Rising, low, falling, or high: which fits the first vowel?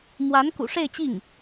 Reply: rising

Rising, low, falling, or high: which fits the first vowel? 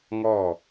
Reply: falling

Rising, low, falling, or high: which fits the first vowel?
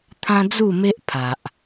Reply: high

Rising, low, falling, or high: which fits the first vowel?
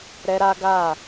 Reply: high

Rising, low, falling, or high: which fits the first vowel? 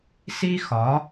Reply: high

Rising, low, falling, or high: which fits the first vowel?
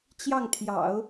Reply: falling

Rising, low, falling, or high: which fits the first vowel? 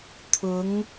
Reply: rising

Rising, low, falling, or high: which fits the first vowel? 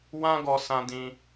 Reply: high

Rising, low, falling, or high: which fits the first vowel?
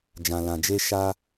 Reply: low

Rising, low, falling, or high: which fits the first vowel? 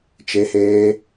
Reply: high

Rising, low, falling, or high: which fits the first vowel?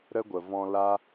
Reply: high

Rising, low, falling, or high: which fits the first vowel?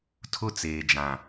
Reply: high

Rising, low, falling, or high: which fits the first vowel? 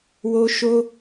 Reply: high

